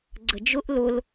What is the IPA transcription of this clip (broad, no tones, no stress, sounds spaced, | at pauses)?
ɡ͡ǀ ə d͡ʒ ʊ ʔ l ʊ l